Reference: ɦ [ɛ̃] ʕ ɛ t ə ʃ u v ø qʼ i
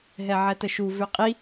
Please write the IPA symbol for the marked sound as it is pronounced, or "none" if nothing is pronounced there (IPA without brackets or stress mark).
ɛ